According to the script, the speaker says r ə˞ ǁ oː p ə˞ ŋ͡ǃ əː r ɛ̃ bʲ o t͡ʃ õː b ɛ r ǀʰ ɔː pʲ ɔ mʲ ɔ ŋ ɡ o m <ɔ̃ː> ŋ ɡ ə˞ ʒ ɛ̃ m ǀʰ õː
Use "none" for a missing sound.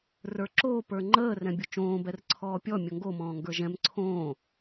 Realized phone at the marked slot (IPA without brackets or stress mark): ɔ̃ː